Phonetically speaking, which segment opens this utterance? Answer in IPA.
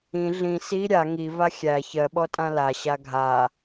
ĩ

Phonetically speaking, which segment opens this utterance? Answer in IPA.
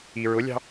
i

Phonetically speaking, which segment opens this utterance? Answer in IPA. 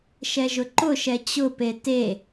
ʃ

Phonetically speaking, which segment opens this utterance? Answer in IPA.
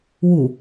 w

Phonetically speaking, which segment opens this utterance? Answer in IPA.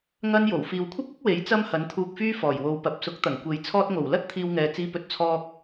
ŋ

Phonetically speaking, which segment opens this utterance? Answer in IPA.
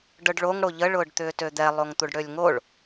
ɖ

